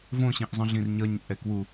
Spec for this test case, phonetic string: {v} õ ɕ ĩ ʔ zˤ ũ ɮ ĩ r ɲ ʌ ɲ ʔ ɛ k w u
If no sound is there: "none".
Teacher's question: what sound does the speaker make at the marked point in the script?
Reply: v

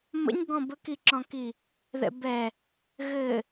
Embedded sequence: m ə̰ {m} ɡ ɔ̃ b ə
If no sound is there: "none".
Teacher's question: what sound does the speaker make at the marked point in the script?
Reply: ɲ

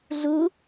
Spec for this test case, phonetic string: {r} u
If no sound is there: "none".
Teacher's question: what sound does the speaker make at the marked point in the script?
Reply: ɮ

